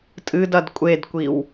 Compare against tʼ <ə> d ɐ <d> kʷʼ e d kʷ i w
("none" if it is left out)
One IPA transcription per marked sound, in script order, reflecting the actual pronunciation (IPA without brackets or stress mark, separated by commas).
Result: ɨ, d